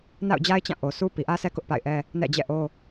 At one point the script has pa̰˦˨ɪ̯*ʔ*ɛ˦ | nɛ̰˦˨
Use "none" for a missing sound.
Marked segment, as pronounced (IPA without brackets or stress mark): ʔ